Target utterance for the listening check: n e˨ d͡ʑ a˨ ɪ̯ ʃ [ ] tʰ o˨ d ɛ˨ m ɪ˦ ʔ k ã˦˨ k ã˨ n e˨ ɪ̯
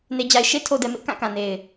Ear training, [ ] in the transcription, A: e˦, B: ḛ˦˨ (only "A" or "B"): A